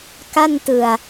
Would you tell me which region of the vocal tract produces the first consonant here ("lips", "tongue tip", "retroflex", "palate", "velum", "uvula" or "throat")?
velum